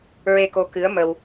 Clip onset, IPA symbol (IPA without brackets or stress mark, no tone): ɹ